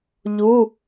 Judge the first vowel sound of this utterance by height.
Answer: high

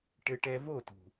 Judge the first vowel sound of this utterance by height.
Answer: mid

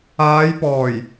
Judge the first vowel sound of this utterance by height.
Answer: low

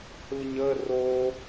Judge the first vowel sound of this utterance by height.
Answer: high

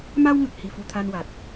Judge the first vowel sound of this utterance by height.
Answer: low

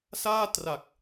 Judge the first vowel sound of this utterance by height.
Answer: low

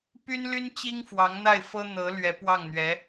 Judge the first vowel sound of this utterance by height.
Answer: high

